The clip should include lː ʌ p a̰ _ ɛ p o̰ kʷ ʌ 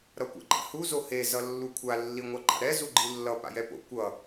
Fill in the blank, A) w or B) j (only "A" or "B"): B